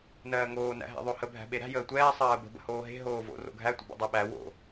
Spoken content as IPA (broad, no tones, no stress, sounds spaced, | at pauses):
n ɜː ŋ oː n æ̰ ɦ æ̰ ðˤ o h ə bʱ æ̤ ɓ e ɾ æ̤ j əː tʷ ɛː sˤ ɜː b ə̤ b ə̰ h oː ɦ e̤ ɦ oː v o̰ r o̰ ɡʱ æ tʷ ə̰ b o̰ dˤ ɜ ɓ æ w o̰